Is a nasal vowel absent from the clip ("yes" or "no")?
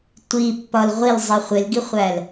yes